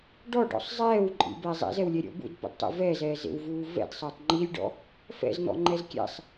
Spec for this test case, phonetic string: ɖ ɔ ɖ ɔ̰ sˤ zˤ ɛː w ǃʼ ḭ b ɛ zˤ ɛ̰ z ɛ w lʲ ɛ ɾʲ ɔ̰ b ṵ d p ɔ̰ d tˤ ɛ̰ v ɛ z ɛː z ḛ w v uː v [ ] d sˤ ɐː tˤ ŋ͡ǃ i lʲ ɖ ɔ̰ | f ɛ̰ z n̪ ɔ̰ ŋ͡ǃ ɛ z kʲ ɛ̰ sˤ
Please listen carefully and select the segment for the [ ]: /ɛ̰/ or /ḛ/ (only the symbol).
ɛ̰